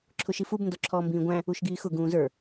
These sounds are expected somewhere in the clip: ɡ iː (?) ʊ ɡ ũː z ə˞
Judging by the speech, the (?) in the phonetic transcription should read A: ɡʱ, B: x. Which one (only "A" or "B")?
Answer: B